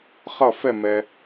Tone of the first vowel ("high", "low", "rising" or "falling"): falling